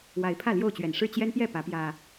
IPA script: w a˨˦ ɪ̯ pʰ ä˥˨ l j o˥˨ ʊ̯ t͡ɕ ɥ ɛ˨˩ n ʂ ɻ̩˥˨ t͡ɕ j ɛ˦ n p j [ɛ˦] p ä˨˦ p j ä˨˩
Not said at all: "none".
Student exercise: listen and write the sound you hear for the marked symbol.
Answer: ɛ˥˨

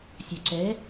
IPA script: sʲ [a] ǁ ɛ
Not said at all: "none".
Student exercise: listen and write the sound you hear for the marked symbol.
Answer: a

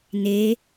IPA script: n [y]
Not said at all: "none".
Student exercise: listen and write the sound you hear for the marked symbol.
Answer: e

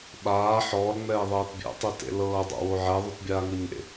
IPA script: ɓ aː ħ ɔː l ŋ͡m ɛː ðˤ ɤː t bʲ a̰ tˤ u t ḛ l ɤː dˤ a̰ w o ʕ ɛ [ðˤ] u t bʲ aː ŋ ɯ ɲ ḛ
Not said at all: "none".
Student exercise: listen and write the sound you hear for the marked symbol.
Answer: ðˤ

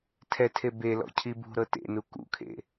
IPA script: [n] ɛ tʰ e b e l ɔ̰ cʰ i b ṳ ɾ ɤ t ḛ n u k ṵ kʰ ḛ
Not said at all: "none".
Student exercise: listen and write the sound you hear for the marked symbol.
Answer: tʰ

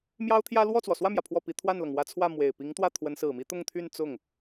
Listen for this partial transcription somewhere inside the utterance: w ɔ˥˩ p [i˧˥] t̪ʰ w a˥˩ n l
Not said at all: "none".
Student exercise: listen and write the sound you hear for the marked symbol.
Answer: i˧˥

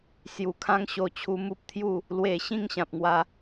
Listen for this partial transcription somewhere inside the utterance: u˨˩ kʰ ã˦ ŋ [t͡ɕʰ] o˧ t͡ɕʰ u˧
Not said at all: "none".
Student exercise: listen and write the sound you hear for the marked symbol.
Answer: ɕ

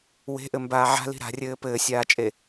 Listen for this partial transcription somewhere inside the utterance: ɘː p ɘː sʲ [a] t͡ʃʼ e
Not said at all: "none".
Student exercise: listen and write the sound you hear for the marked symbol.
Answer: aː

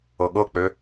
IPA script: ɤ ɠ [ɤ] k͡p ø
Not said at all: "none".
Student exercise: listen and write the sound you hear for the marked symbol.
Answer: ɤ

